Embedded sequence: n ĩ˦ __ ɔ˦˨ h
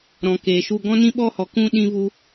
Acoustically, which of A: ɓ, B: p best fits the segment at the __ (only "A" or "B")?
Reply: A